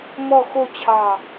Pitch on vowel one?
falling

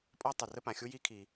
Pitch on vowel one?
high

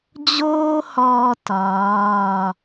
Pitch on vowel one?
high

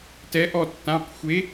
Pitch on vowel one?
rising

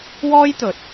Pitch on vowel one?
high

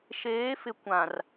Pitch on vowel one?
rising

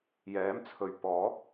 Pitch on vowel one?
rising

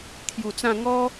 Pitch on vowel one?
low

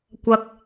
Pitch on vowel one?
low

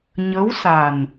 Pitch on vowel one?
rising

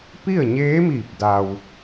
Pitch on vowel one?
falling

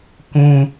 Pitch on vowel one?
high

